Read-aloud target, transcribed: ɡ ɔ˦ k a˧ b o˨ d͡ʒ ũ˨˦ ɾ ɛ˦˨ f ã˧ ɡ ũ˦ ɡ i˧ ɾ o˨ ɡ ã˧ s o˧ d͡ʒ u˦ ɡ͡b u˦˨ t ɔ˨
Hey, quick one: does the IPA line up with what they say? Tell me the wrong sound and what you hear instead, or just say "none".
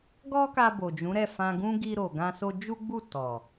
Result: none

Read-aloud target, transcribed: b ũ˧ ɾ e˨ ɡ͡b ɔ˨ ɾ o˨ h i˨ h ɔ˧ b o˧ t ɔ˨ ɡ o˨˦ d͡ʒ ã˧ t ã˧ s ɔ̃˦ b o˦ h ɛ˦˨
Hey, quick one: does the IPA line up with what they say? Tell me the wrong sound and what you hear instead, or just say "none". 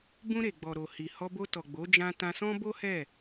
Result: ɡ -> ɡ͡b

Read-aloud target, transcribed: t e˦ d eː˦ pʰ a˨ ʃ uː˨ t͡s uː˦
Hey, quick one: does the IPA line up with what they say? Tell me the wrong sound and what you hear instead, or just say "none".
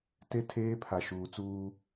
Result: d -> tʰ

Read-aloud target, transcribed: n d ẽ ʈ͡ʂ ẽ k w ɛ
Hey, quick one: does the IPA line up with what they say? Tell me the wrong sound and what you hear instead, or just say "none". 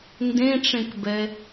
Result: w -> b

